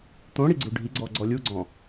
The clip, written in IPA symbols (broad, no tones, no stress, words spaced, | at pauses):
t̪õɽi ɡ͡ǀuɖʱiɡ͡ǀɔ ɡ͡ǀɔlʲuɡ͡ǀɔ̃